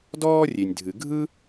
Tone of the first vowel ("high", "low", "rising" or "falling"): high